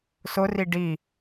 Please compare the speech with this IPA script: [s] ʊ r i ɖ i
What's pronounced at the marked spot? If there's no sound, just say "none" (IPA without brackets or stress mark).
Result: s